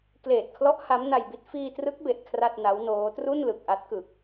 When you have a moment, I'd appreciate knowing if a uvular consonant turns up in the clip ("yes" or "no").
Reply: no